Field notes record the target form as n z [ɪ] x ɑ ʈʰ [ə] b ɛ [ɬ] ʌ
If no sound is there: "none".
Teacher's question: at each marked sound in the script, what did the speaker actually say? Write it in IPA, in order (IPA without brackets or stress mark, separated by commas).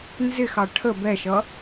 ɪ, ə, ʃ